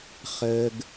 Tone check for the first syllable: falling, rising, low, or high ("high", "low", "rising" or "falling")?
low